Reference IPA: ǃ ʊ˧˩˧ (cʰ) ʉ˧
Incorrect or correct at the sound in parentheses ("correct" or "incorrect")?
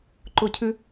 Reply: correct